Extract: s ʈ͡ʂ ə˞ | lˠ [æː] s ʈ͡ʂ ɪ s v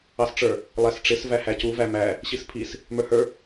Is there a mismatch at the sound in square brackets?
yes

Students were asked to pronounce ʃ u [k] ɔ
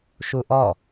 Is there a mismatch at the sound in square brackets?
yes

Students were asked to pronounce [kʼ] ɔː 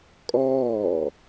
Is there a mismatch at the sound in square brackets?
no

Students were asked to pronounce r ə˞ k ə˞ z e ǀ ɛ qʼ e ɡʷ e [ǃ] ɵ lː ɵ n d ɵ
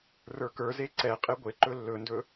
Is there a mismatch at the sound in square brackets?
no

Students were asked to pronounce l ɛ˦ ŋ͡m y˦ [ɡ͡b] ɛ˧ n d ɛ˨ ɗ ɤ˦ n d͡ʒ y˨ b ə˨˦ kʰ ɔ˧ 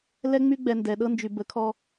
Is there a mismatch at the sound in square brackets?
no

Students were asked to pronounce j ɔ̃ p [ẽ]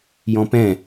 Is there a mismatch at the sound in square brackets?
yes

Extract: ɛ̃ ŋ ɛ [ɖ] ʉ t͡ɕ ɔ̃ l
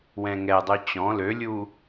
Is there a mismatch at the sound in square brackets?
yes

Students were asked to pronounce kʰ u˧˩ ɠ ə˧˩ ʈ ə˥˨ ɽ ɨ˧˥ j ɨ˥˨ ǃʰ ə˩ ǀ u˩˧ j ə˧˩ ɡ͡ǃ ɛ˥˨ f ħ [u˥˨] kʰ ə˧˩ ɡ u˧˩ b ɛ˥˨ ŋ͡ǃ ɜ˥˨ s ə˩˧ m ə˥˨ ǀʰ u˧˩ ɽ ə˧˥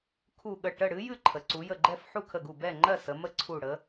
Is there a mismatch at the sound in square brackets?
no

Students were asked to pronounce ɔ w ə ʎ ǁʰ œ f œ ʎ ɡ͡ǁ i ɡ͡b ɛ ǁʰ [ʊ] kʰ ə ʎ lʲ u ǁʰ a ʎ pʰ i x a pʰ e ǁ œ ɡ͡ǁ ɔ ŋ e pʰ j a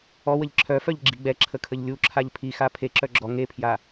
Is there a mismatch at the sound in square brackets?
yes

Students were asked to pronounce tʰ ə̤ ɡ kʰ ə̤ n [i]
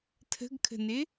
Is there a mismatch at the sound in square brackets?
yes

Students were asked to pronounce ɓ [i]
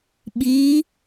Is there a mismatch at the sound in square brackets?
no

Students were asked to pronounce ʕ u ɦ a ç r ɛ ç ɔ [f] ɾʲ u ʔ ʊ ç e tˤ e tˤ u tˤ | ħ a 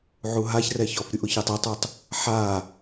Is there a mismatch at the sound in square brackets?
no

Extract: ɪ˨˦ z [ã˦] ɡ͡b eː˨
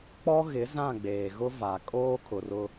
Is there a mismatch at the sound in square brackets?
yes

